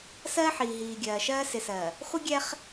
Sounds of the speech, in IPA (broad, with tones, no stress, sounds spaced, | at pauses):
s ɜː˦ ħ iː˨ ɦ iː˨ ɡʲ ɜː˨ ʃ ɜː˦ s ɪ˨ s ɜ˨ | χʷ ɪ˦ ɡʲ ɛ˦ χ